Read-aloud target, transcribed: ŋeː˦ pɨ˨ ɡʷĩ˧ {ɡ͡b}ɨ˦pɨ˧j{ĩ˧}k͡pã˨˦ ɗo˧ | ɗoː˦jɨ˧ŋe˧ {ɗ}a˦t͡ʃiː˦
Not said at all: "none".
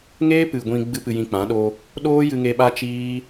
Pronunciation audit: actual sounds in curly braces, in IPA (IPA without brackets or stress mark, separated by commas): ɡ͡b, ĩ˧, ɓ